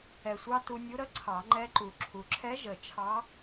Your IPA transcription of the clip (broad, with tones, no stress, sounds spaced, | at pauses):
ɛ˨˩ sʷ ɑ˧ t u˧ nʲ u˧˥ ɾ ə˧˥ ǀʰ ɑ˨˩˦ ŋ͡ǃ ɛ˧˥ ǃ u˨˩ ǁʰ u˨˩ ǁʰ ɛ˧˥ ʒ ə˨˩ t͡ʃʰ ɑ˧˥